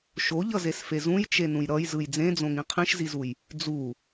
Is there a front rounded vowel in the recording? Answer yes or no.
no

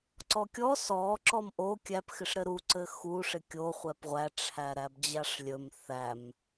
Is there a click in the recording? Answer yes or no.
yes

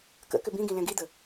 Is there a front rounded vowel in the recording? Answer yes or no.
yes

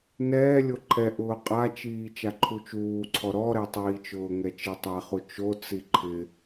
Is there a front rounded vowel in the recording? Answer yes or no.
no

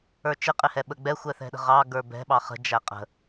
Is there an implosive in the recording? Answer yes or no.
yes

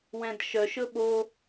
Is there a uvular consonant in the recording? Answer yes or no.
no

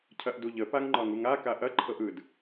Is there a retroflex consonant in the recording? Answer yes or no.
no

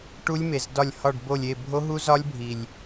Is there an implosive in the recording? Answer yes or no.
no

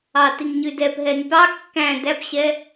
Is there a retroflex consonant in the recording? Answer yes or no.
no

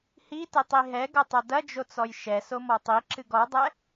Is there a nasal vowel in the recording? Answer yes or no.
no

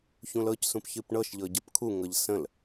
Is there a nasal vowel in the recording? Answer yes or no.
yes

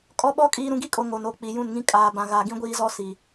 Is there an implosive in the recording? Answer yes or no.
yes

